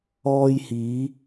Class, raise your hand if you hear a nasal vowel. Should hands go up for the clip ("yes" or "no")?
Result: no